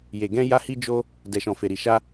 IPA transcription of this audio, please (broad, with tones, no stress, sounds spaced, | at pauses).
j e˨ ɡ ɛ̃˧ j a˧ h i˧ d͡ʒ o˧ | d ɛ˨ ʃ ɔ̃˨ f e˨ ɾ i˨ ʃ a˧